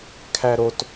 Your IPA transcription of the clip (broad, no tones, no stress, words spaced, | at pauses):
kʰæɾot